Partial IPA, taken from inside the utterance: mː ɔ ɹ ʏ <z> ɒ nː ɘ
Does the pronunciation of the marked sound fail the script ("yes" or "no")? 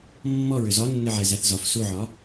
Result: no